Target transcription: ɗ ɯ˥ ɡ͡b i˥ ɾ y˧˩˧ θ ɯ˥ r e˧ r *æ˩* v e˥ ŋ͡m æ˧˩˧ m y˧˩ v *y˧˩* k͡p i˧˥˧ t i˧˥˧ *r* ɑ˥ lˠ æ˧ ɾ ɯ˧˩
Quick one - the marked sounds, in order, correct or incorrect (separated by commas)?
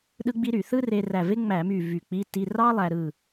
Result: incorrect, correct, correct